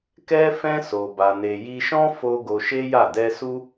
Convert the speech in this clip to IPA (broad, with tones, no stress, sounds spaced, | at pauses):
k ɛ˦ f ɛ̃˦ s o˧ b a˧ n e˧ j i˦ ʃ ɔ̃˦ f o˧ ɡ o˧ ʃ e˦ j a˦˨ d ɛ˧ s u˦